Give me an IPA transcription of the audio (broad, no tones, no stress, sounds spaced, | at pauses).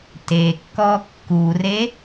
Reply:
t e kː ɔ kː u r e